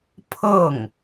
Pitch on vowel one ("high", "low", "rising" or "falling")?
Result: falling